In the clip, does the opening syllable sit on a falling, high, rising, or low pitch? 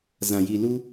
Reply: low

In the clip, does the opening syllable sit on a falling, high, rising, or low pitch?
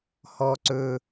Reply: high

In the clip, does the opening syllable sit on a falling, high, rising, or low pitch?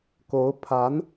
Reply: rising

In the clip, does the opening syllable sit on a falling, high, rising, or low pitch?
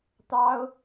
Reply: high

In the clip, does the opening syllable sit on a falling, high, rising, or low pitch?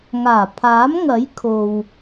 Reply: low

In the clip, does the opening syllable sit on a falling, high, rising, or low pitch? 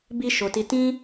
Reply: high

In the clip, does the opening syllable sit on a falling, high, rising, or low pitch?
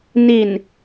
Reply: low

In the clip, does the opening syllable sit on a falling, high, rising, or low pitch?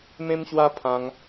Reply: high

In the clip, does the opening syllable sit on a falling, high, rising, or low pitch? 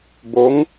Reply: rising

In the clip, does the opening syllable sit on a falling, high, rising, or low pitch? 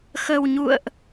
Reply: low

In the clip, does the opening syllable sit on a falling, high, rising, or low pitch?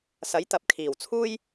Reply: rising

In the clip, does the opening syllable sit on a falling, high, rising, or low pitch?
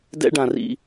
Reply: high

